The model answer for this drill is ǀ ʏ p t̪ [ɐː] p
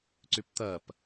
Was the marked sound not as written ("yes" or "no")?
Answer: no